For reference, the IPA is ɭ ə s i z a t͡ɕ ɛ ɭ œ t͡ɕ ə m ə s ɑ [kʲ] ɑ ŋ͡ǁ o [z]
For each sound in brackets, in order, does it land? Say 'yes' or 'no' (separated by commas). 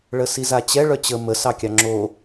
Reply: yes, no